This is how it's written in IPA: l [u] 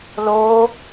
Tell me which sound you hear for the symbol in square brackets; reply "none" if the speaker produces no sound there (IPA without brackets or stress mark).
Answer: o